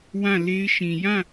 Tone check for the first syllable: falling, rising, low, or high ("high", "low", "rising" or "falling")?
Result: falling